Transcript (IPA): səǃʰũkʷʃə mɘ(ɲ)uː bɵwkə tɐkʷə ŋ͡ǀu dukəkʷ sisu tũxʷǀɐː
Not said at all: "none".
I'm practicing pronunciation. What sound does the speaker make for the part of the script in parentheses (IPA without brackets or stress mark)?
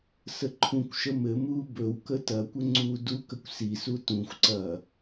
m